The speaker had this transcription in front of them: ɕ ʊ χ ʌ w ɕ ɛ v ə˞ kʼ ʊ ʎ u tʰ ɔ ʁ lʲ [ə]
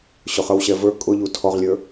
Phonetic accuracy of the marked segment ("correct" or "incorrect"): incorrect